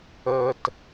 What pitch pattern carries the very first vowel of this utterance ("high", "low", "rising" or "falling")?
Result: low